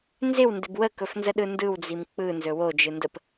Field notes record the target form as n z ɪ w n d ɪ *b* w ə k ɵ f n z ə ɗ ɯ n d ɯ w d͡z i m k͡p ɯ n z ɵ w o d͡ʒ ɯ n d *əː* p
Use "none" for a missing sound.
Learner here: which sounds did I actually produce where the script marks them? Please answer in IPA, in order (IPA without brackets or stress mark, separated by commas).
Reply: b, ə